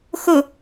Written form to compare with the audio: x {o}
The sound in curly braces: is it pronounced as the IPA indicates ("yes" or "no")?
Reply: yes